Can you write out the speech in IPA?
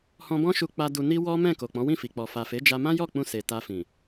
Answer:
h ɔ̃˧ b ɔ̃˦ ʃ u˧ k͡p a˧ d u˧ n i˧ w ɔ˦ m ɛ̃˦˨ k o˨ k͡p ɔ̃˨˦ w ĩ˦˨ f i˨ k͡p ɔ˨ f a˨ f e˨˦ d͡ʒ a˧ m ã˦ j ɔ˦˨ k͡p ũ˧ s e˨ t a˧ f ĩ˨

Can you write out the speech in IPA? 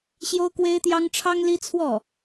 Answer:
ɕ j o˥ ʊ̯ k w e˥ ɪ̯ t̪ j ɑ˥ ŋ ʈ͡ʂʰ ɑ˥ ŋ l i˥ t͡sʰ w ɔ˥˩

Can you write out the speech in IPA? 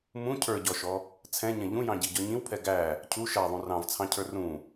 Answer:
m ũ cʰ ə˞ ɟ ɔ ʃ ɔ | t͡sʰ ɛ̃ ɲ ɛ̃ ʎ ũ j ɑ̃ ɟ i ɟ ɔ ɲ ĩ w pʰ ɛ ɡ æ | cʰ u ʃ æ ðˤ ũ r ɑ̃ v t͡sʰ ɑ̃ cʰ ə˞ r ũ

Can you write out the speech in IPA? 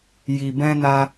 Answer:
j i˨ b ɛ̃˧ n a˧

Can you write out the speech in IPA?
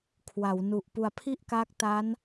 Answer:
kʰ w a˩˦ w n u˨˩ ʔ p u˨˩ a̯ pʰ i˥˩ ʔ k aː˦˥ k̚ t a˦˥ n

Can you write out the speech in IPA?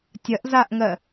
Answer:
tʲ ɐ ʔ z a ʔ ŋ ɜ

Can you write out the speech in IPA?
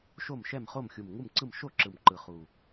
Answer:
ʃ o˥˨ m ʃ ɛ˥˨ m χ o˥˨ m xʲ u˨˩ m ŋ u˥˨ m ǀ ɯ˥˨ m ʃ o˥˨ ǁ ɯ˨˩ m ǃ ɯ˨˩ χ u˨˩

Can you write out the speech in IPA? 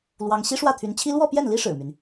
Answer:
l w ɑ˥ ŋ ɕ i˥ ʂ w ä˥˩ t̪ʰ y˧˥ n t͡ɕʰ i˥ l w ɔ˥˧ p j ɛ˥˩ n l i˥ ʂ ɻ̩˨˩ m y˦ n

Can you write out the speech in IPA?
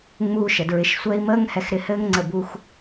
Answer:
ŋ͡m uː˧ ʃ ə˨ d ɹ ɪ˨ ʃ sʷ ɛ˧ i̯ m əː˦ ŋ h ɛ˧ x ɾ ɪ˧ h ɘː˦ ŋ ŋ͡ǀ ə˦˨ b u˦ x

